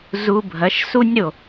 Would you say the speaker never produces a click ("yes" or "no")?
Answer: yes